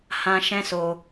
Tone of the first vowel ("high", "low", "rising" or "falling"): high